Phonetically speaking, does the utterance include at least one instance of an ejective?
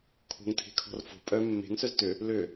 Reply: yes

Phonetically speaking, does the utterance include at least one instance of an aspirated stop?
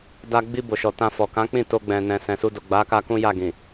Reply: no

